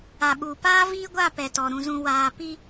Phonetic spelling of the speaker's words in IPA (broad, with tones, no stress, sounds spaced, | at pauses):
a˨ ɓ uː˨ p aː˦ v iː˦ ɡʷ a˦˨ p ɛ˨ t ɔ˨ ɾ ũ˨ z ũ˨ w aː˨ p i˦